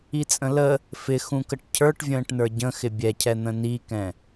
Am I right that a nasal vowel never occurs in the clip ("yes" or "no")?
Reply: no